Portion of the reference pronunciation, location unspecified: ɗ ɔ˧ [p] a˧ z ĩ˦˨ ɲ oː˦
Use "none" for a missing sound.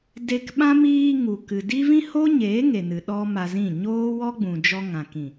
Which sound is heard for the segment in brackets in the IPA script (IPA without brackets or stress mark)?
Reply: m